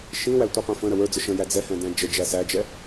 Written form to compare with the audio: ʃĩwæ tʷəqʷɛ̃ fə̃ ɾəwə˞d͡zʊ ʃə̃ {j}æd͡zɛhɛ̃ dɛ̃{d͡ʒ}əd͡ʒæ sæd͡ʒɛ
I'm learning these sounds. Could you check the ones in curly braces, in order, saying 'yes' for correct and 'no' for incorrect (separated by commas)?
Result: yes, yes